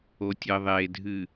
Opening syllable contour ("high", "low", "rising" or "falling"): low